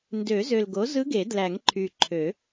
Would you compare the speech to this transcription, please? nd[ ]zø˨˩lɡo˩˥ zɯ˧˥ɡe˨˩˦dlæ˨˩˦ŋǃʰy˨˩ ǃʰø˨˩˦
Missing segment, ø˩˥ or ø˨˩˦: ø˨˩˦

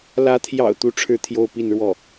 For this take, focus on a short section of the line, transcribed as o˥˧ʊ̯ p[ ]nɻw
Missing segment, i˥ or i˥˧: i˥˧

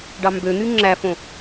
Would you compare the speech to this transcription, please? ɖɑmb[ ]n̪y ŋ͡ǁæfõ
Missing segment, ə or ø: ø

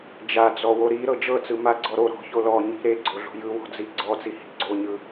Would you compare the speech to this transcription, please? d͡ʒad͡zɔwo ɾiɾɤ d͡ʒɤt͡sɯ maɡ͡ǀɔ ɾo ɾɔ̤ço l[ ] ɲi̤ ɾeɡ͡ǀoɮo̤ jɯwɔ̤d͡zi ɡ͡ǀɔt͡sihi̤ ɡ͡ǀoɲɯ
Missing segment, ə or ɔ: ɔ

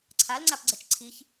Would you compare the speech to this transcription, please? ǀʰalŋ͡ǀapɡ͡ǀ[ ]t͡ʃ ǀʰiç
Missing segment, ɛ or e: ɛ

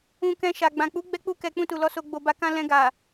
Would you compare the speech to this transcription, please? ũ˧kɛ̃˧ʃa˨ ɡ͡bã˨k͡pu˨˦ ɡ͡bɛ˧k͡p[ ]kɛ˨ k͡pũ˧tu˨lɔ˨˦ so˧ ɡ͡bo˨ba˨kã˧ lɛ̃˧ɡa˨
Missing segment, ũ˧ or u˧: u˧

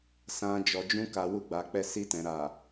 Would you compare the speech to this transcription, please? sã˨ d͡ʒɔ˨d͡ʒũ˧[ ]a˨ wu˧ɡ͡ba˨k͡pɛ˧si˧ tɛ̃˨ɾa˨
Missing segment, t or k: k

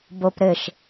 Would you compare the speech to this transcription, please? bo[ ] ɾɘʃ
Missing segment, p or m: p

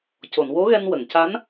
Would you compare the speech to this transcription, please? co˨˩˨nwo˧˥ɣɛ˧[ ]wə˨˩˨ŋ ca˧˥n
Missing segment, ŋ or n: n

